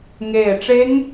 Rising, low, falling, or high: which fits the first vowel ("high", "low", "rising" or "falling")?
falling